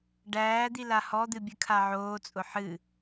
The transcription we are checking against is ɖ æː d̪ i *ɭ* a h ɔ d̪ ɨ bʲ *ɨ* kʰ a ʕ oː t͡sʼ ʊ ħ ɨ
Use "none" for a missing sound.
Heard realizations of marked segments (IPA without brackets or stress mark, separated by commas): l, ɨ